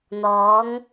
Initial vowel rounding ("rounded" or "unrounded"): rounded